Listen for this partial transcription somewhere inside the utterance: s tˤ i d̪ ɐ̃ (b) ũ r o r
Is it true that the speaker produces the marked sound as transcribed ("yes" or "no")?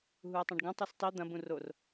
yes